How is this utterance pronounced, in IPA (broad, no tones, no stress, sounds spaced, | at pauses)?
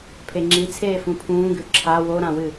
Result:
pʰ e ŋ͡ǁ i t͡sʰ eː f ũ pʰ ũː ɡ ʉ ǁʰ a w o ɾ ã w ɨ